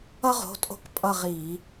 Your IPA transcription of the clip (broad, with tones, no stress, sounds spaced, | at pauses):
ʌ˥ ʁ o̤˩˧˩ tʼ o̤˦˨ k pʼ ʌ˦˨ ʁ i˧˩˧